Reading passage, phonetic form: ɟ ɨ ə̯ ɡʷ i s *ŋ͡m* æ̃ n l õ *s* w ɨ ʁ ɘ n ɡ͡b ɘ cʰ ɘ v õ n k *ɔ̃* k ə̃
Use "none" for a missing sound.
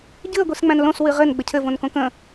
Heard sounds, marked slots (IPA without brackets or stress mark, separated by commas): ŋ͡m, s, õ